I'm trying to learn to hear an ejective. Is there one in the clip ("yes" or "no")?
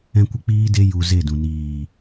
no